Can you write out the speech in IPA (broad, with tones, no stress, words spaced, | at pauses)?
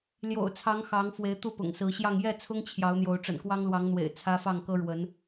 ljo̰˨˩ʊ̯t͡sʰɑ˨˦ŋ xɑ˨˦ŋfwe˨˦ɪ̯ t̪u˥˨pʊ̰˨˩ŋsɹ̩˨˦ɕjɑ˥˨ŋ jɛ˥˨t͡sʰʊ˦ŋ t͡ɕʰjɑ˨˦ʊ̯n̪jo˨˦ʊ̯ ʈ͡ʂə̰˨˩nkwɑ˦ŋlwɑ˨˦ŋ n̪wḛ˨˩ɪ̯t͡sʰä˦fɑ˥˨ŋ kɤ˦ɻwə˨˦n